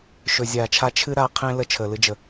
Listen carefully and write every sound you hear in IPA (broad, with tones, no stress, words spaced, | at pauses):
ʃɵ˨zʲaː˨t͡ʃʰa˦ t͡ʃʰɨ˦ ɾa˨˦ qʰẽ˦ lə˦t͡ʃʰəː˨lɨ˦d͡ʒə˨